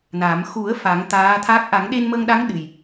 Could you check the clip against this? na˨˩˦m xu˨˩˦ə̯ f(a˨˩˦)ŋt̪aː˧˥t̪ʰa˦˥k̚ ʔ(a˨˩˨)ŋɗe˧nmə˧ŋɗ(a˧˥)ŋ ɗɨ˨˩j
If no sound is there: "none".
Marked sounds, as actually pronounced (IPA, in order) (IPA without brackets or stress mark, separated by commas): a˨˩˦, a˨˩˦, a˧˥